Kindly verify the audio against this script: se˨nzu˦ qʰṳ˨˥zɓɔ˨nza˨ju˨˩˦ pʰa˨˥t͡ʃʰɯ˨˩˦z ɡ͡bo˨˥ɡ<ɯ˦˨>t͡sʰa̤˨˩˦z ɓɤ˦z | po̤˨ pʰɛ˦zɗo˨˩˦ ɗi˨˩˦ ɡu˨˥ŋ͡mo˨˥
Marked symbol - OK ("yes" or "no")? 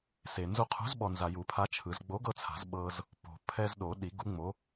no